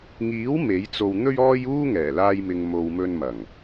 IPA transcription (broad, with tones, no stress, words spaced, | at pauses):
ŋiː˨˥w me˨˥jt͡so˧w n̪ɵ˥ɥɔː˥j uː˥ŋɛː˨˩laː˧jmɪ˨ŋ mo˨wmɵ˧n mɐ˨˩ŋ